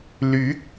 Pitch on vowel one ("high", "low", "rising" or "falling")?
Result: rising